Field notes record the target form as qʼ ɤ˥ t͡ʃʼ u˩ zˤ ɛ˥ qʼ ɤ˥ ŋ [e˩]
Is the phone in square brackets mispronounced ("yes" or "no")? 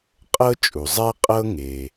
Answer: no